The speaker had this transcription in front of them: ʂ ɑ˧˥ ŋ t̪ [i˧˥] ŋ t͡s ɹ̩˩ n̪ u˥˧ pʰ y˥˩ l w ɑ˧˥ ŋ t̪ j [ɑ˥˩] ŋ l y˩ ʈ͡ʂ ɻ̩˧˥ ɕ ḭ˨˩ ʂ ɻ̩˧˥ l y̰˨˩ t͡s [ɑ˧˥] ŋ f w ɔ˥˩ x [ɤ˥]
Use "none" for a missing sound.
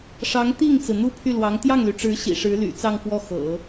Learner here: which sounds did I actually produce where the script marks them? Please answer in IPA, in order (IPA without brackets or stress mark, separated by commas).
i˥˩, ɑ˥˩, ɑ˥˧, ɤ̰˨˩˦